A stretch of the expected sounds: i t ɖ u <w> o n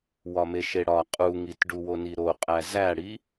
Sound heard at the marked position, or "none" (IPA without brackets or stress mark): w